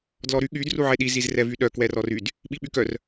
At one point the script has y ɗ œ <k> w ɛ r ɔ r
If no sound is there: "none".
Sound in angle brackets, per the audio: k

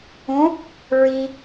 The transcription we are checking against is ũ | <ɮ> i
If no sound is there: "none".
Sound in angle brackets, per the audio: ɹ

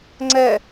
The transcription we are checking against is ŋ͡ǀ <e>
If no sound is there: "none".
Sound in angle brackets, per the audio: ɛ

